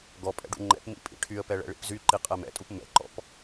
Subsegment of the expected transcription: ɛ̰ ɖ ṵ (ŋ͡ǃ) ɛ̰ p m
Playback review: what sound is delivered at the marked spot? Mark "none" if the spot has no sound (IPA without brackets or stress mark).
ŋ͡ǃ